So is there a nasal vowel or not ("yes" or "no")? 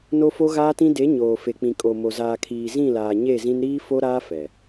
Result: yes